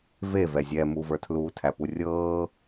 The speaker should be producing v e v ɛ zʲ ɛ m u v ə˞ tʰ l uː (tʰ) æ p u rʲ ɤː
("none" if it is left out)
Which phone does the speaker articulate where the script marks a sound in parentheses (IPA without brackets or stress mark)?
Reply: tʰ